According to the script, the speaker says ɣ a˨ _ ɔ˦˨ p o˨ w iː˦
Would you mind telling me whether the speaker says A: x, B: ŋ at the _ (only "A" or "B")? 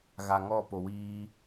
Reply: B